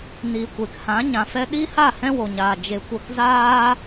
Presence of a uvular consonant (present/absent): absent